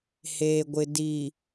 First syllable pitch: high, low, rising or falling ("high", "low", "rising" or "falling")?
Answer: low